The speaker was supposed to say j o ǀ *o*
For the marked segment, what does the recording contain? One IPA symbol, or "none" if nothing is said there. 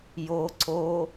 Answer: o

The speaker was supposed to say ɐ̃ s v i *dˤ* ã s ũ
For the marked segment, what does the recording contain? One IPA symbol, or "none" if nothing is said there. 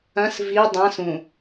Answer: dˤ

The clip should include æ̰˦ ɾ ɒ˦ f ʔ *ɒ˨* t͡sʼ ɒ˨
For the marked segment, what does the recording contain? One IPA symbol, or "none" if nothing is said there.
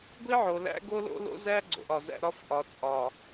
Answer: ɒ˨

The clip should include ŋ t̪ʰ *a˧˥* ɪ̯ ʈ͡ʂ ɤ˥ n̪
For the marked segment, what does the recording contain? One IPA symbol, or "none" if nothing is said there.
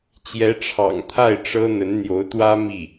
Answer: a˥˩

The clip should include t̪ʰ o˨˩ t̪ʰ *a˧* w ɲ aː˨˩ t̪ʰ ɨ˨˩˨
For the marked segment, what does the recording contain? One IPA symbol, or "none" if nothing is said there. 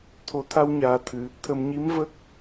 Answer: a˧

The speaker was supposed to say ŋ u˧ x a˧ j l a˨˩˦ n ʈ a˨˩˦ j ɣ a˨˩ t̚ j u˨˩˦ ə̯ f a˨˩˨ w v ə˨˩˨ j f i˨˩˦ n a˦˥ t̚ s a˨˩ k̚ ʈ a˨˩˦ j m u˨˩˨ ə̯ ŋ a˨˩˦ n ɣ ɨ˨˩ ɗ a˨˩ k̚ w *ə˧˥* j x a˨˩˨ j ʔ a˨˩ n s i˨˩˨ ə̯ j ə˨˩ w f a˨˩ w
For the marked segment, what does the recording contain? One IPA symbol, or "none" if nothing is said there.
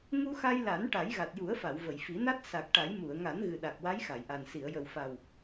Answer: a˧˥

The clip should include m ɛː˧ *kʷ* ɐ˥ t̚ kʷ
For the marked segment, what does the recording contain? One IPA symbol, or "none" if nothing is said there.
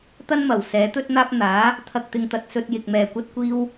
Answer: kʷ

